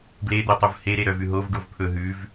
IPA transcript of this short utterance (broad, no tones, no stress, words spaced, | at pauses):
ɡled̪œtˤuv heɾe ɾœvʉɦov ɖovpʰɵ ɦʉv